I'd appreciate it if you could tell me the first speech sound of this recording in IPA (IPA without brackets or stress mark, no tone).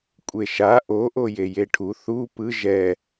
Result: kʷʼ